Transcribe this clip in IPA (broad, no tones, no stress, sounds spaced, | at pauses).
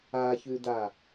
a ç ʉ d a